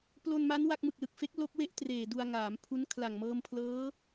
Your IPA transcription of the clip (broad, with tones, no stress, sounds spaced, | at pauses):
p l o˧ n m a˦˥ n w a˦˥ k̚ m ɯ˨˩ k̚ l ɯ˨˩ k̚ f e˦˥ k̚ l o˦˥ k̚ w e˥˩ ʔ t r eː˨˩ d u˧ a̯ ŋ aː˩˦ m pʰ u˦˥ n kʰ l a˨˩ ŋ m ɤː˧ m pʰ l ɤː˦˥